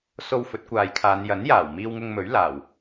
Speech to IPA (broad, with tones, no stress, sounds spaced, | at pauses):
s o˧ w f ɵ˨˥ t̚ kʷ aː˨ j kʰ aː˨˧ n j ɐ˨˥ n j aː˨˩ w m iː˧ w ŋ ʊ˧ ŋ m ɵ˨˥ ɥ l aː˨˩ w